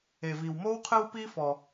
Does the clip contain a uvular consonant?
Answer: yes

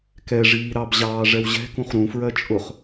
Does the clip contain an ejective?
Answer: yes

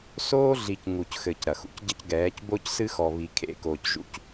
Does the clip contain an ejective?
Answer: no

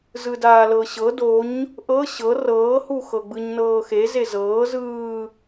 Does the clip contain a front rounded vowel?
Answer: no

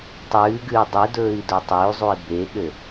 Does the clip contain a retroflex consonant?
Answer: no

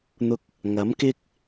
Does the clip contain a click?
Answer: no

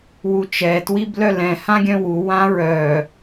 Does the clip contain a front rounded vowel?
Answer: yes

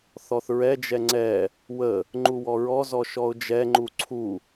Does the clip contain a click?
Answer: yes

